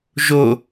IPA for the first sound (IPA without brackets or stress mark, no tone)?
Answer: ʒ